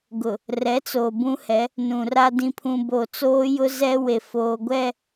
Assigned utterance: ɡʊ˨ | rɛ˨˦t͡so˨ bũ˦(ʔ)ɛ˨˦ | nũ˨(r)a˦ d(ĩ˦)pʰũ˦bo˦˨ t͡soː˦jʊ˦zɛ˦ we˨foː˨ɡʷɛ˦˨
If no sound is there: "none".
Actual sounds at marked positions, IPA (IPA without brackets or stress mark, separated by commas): h, r, ĩ˦